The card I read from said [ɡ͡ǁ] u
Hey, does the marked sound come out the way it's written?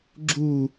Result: yes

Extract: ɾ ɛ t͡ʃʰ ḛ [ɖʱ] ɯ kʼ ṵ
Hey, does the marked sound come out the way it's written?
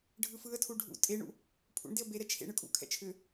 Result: no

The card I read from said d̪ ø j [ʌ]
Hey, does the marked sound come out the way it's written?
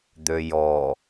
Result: no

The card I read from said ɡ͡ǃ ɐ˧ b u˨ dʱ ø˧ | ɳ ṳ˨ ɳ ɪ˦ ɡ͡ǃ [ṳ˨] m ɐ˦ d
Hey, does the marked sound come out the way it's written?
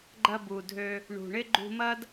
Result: no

